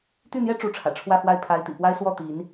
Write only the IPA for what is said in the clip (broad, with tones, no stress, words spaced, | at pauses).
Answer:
t̪y˥˩n̪jɛ˥ ʈ͡ʂu˧˥ʈ͡ʂʰä̰˨˩ ʈ͡ʂʰwä˥˧fwa˥˩ɪ̯ pʰa˧˥ɪ̯t̪ḭ˨˩pwa˥ɪ̯swɔ˥˩ t̪i˧˥n